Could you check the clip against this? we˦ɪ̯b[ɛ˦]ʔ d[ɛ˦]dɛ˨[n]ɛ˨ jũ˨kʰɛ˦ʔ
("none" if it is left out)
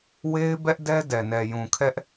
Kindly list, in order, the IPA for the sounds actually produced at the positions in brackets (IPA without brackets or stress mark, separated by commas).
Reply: ɛ˦, ɛ˦, n